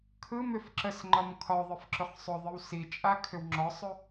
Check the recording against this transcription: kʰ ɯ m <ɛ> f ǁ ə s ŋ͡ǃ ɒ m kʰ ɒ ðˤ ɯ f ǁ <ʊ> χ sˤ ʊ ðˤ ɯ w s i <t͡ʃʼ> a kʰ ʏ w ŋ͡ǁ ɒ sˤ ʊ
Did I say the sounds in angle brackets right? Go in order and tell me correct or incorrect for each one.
incorrect, correct, correct

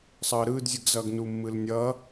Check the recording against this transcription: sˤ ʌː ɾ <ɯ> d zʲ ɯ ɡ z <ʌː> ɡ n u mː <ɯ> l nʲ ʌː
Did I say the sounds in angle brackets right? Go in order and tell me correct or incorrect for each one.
incorrect, correct, correct

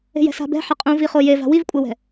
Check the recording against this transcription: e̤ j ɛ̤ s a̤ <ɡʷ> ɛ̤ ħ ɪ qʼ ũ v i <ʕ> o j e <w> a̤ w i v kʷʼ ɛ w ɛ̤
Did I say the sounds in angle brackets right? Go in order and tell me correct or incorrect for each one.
incorrect, incorrect, incorrect

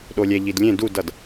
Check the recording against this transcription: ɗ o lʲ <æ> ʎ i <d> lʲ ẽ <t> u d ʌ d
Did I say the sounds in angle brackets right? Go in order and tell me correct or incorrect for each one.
incorrect, correct, incorrect

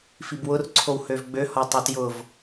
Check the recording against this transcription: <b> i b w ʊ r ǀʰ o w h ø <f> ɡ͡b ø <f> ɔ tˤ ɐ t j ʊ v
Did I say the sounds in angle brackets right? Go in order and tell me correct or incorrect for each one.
incorrect, incorrect, incorrect

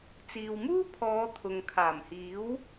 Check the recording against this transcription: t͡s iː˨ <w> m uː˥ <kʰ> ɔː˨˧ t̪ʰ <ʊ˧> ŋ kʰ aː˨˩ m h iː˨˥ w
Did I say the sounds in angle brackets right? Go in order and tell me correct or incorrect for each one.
correct, incorrect, incorrect

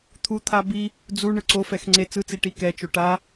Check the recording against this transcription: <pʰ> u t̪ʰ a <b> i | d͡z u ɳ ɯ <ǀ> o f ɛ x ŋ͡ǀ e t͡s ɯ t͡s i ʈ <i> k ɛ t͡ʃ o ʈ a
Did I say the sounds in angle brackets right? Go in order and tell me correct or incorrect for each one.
incorrect, correct, correct, correct

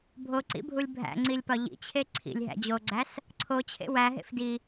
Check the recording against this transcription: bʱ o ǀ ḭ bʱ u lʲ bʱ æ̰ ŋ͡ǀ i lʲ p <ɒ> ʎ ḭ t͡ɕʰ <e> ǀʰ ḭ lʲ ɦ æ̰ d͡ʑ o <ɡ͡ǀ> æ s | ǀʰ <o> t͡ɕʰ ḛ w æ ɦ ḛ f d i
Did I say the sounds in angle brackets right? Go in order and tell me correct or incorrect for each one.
correct, correct, correct, correct

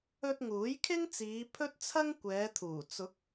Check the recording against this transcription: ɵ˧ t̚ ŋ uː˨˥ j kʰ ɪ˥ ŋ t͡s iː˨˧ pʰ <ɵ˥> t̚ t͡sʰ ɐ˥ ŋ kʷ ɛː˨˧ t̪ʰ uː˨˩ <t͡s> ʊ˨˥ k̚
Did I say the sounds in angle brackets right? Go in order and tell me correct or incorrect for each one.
correct, correct

